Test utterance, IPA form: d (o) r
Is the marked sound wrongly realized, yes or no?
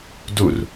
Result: yes